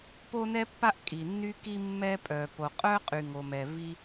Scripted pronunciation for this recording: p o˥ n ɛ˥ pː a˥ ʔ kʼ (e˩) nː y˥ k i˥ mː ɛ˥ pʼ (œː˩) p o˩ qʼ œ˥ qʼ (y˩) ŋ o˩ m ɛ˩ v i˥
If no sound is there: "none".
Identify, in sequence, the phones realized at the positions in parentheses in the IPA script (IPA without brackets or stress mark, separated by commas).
i˩, œ˩, y˩